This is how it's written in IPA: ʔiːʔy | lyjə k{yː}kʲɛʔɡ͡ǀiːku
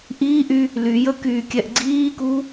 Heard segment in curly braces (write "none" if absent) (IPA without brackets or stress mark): yː